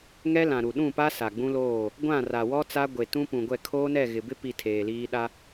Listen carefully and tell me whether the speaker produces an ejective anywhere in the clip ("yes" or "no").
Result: no